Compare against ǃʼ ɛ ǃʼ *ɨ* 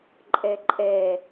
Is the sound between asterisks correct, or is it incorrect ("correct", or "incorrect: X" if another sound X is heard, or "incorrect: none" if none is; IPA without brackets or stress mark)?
incorrect: ɛ